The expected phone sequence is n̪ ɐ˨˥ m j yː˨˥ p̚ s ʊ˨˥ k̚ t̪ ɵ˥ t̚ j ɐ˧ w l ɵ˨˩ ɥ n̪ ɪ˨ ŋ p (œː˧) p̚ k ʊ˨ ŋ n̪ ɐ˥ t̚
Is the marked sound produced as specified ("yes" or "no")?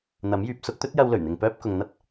yes